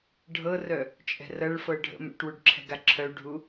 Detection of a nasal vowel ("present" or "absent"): absent